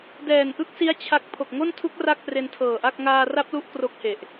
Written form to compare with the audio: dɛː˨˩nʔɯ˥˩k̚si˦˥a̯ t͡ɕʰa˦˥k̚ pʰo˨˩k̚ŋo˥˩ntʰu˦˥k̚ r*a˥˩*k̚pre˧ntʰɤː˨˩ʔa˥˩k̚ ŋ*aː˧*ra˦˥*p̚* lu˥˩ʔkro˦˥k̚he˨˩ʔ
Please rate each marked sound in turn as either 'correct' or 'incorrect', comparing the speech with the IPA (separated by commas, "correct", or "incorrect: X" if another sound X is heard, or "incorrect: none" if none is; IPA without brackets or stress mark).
correct, correct, correct